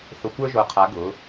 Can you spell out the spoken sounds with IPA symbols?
θ ʊ˧ kʷ ə˞˥ ʒ o˧˩ qʰ a˨˥ ɡ ʊ˨˥

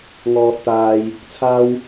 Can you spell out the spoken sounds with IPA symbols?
ŋ ɔː˨ t̚ t̪ aː˨ j | t͡sʰ aː˧ w

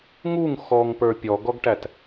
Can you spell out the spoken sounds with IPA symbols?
ŋ u ŋ x ɔ ŋ p ə˞ pʲ ɔ ɡ ɔ ɡ ʈ æ t

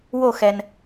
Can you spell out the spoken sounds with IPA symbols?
w o˥˧ x ɛ˧ n

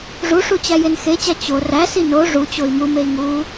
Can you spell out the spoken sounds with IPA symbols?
ʐ u ʂ u t͡ɕ æ j e n x e t͡ɕ æ t͡ɕ o r æ s i n o ʐ u t͡ɕ o i̯ m u m e i̯ ŋ u

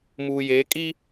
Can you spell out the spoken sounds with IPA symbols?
m uː˨ j eː˨˦ kʼ i˦

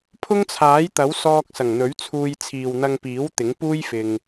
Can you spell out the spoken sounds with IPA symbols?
pʰ ʊ˥ ŋ t͡sʰ aː˨˥ j t̪ ɐ˨˥ w s ɔː˧ k̚ s ɐ˨˩ ŋ n̪ ɵ˨˥ ɥ t͡sʰ uː˧ j t͡sʰ iː˨ w n̪ ɐ˧ ŋ p iː˨˥ w t̪ ɪ˨˥ ŋ p uː˥ j f ɪ˨ ŋ

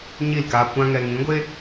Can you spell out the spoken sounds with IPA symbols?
ɲ i˦˨ l k aː˧ kʷ ã˦ ŋ ɛ˧ ŋ ĩ˨˦ ɡʷ e˦

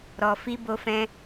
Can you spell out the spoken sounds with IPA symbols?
ɾ ɔ˧ f i˦ b o˧ f ɛ̃˧

